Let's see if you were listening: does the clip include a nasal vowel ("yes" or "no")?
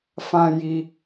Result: yes